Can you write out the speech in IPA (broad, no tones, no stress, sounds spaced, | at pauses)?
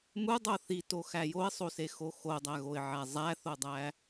m u dˤ o θ i t o x æ j o ɪ̯ sˤ o s e x o x o dˤ æ ɣ o ɪ̯ ʕ æ zˤ æ θ o dˤ æ